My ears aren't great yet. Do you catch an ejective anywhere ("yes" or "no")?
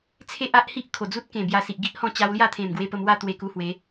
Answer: no